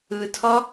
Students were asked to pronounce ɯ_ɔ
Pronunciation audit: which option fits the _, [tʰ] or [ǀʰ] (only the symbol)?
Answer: tʰ